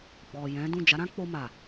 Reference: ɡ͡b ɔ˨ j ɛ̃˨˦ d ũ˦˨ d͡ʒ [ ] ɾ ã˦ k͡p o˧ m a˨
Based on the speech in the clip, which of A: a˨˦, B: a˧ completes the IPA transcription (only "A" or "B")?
A